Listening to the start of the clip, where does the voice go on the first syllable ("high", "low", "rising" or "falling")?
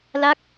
falling